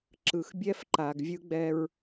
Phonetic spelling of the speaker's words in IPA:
ǁ ɯ˨ x bʲ ɛ˦ f ǃ a˨ ɡ vʲ ɯ˦ ɡ͡b ɛ˦ ɹ

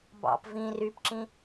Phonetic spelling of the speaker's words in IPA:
b ɑ̰ p v ĩ r y p ǁ ĩ

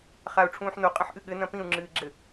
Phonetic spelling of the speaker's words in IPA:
χ a u̯ ʈ͡ʂʰ ũː ħ n o qʼ ɐ̃ ħ ʔ ɨ ɠ ɘ n ɐ̃ p ĩ u̯ ŋ͡ǁ ɨː ɡ͡ǁ ɘ

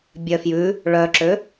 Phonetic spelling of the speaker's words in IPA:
bʲ œ f j ʉ | ɭ œ ǁ ø

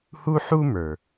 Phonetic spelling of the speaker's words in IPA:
h u˥ ħ u˥ m ə˞˩

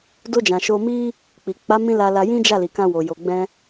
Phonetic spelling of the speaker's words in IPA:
d o˧ d͡ʒ ã˨ ʃ o˧ m i˦ | k͡p i˨ k͡p a˨˦ m ĩ˧ l a˧ l a˧ j ĩ˦ d͡ʒ a˦˨ l i˨ k ã˧ w o˨ j o˨ ɡ͡b ɛ̃˧

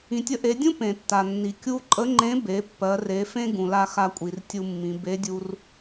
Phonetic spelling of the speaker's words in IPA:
ĩ˩ tʲ ə˧ ʔ e˩˧ dʲ ũ˥ p ẽ˩ tː a˩ nː i˩ kʲ u˧ ǃʼ ə˧˥ ŋ͡ǃ ẽ˧˥ b e˩˧ pː ɜ˩˧ r e˩˧ f ẽ˥ ɡ ũ˩ l a˧ x a˧ kʷʼ i˩ r tʲ u˧ mː ĩ˩˧ b e˧˥ dʲ u˧ r

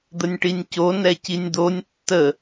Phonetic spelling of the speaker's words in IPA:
d̪ ə nʲ ʈ i nʲ c o n ɛ c i nʲ d̪ o nʲ tː ə

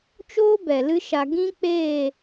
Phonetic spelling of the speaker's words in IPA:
t͡ʃ oː˦ b ɛ˨ l ɨ˦ ʃ a˧ ɡ ĩ˦ k͡p eː˦˨

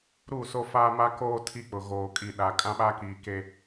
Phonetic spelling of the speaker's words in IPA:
ɾ u˦˨ s o˦ f a˦ m a˦ k oː˦ tʰ i˦ k͡p ʊ˨ ɣ oː˨ kʼ i˨ ɗ a˨ kʼ ã˦ ɓ a˦ k iː˨ k e˦

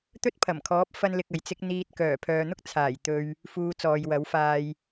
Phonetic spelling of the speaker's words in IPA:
t̪ ɵ˥ t̚ pʰ ɐ˨˩ m kʰ ɔː˨˥ p̚ f ɐ˥ n l ɪ˧ k̚ ɐ˨ j t͡s ɪ˥ k̚ n̪ iː˧ t̚ k œː˨˩ pʰ œː˨ n̪ ʊ˥ k̚ t͡sʰ aː˨˩ j t̪ ɵ˧ ɥ | f uː˧ t͡s ɔː˨ j w ɐ˨˥ w f aː˧ j

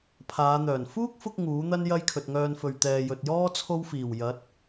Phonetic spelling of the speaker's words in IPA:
pʰ aː˨˧ n̪ œː˨˩ n f uː˥ k̚ f ʊ˧ k̚ ŋ uː˨˥ n̪ ɐ˥ n j ɐ˥ j kʰ ɵ˨ t̚ ŋ œː˧ n f ɵ˨ ɥ t̪ ɛː˨ j ɵ˨ t̚ j ɔː˥ t͡sʰ o˥ w f iː˨˩ w j ɐ˨˥ t̚

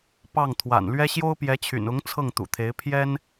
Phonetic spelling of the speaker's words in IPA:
p ɑ˥˩ ŋ t̪ʰ w a̰˨˩ n l ɥ ɛ˥ ɕ j o˥ ʊ̯ p j ɛ˧˥ t͡ɕʰ y̰˨˩ n ʊ˧˥ ŋ t͡sʰ ɤ˥˩ ŋ t̪ ṵ˨˩ t̪ʰ e˧˥ ɪ̯ pʰ j ɛ˥ n

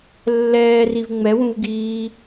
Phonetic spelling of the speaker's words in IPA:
lː ɛː r i v ŋ͡m ɛ w ũ v ɡ iː

